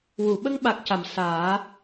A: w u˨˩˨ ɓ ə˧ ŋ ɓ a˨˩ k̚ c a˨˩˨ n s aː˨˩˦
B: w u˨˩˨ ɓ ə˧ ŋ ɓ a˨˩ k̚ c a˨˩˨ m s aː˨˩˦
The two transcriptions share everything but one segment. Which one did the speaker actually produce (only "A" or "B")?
B